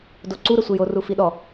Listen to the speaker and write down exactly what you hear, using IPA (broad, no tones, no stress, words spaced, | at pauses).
doǀuɾə sʷejo rufiɗɔ